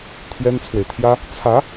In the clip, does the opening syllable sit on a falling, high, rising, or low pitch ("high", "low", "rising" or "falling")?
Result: high